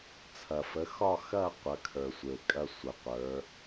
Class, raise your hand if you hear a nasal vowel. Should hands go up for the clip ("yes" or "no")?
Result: no